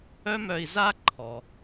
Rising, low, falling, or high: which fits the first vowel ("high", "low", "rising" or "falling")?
high